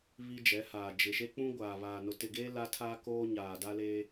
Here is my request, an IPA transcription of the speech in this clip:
β i˦ d͡ʒ ɛ˨˦ h aː˨ d͡ʒ ɪ˨ ʃ e˦ k͡p ũ˦ ɡʷ aː˨ β aː˨ n ʊ˨ t ɪ˨ ɡ eː˦ l a˦ tʰ aː˦ k oː˦ ɲ aː˨ d a˦ l eː˦

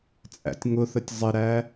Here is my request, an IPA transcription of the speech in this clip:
t͡sʼ æ̰ tʲ ŋ ʊ θ ə tʲ zˤ ɪ ɾ æ

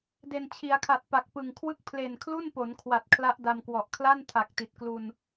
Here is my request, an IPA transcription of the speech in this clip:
d e˨˩ n t͡ɕʰ i˩˦ a̯ kʰ a˨˩ t̚ p a˨˩ k̚ p ɯ˨˩ ŋ kʰ w ɯ˥˩ k̚ pʰ l e˨˩ n kʰ l u˥˩ n p o˩˦ n kʰ w a˨˩ t̚ kʰ l a˦˥ ʔ d a˧ m k w ɔ˨˩ ʔ kʰ l a˥˩ n tʰ a˨˩ k̚ t i˨˩ t̚ k l u˧ n

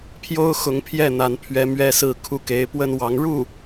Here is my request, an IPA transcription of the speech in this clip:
pʰ j o˥ ʊ̯ x ʊ˧˥ ŋ pʰ j ɛ˥˩ n̪ a˧˥ n pʰ ɥ ɛ˧˥ m ɥ ɛ˥ s ɹ̩˥˧ kʰ u˥˩ k e˧˥ ɪ̯ p w ə˥ n w ɑ˧˥ ŋ ɻ u˥˩

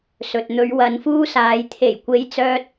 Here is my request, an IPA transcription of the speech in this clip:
s ɵ˨ t̚ n̪ ɵ˨˧ ɥ w ɐ˨ n f uː˧ s aː˨ j t̪ʰ e˨˩ j kʷ e˨˧ j t͡s œː˧ t̚

